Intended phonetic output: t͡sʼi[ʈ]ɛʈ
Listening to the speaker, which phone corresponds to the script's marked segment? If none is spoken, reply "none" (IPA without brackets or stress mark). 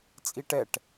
ʈ